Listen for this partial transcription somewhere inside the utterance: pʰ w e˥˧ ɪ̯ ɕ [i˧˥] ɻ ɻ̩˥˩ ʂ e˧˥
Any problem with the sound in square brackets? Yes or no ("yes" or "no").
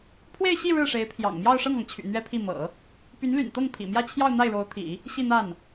yes